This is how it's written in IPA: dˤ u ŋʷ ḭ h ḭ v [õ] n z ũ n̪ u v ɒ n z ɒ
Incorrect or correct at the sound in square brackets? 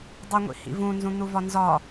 incorrect: ũ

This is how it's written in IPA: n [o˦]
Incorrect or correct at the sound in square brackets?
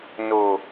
incorrect: o˨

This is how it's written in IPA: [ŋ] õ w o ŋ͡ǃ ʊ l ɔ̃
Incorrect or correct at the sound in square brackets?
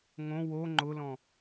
correct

